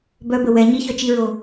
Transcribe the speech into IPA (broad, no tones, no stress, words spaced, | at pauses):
bœbə wɛ ɲiçœt͡ʃiɹo